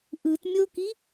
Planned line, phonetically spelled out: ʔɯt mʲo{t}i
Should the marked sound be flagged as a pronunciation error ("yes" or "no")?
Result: yes